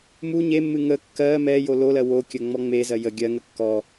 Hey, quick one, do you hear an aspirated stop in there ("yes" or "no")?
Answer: no